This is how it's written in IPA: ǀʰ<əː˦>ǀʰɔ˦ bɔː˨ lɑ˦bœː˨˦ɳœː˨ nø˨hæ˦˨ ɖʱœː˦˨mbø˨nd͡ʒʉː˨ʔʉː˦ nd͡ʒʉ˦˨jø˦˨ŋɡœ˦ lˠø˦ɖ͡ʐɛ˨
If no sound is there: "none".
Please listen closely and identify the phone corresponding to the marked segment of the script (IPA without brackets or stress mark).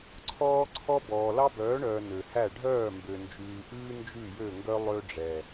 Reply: ɔː˦